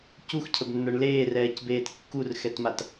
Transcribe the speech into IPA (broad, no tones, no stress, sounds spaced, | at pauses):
c u x cʰ ə b nː ə˞ ɳ l eː r ɛː c b eː t kː u r x ɛ t m a t